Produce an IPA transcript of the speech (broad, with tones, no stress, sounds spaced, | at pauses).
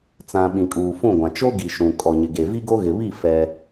t͡s ã˨ ɓ ĩ˨ kʼ uː˨ f ũ˦˨ ɡʷ ã˨ t͡ʃ o˦ ɡ i˨ ʃ ũ˨ kʼ ɔ˨ ɲ ɪ˨ ɡ e˨ v i˦ ɡ o˦ ɣ ɪ˨ β i˦˨ f ɛ˦